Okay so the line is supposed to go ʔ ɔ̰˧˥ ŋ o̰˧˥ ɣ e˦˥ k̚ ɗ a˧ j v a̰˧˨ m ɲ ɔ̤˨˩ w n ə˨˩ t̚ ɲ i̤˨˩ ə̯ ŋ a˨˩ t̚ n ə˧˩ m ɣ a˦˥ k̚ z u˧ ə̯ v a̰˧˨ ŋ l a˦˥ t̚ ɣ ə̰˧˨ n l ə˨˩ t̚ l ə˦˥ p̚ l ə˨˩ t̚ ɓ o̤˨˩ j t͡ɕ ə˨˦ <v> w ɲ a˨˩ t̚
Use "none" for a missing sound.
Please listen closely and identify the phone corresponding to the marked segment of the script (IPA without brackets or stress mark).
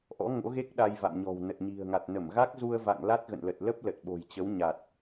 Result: none